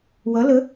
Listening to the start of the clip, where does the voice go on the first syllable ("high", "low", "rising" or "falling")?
rising